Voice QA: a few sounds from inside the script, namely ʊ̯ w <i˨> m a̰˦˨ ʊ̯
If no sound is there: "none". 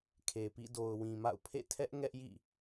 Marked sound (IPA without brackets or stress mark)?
ĩ˨